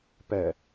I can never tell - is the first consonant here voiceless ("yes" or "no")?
yes